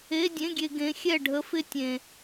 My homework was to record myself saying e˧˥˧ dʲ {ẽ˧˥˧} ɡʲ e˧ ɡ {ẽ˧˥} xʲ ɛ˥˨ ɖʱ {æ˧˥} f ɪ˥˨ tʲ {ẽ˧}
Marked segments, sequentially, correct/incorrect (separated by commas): correct, correct, incorrect, correct